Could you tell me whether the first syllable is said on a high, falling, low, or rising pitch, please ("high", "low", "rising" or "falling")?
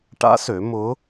rising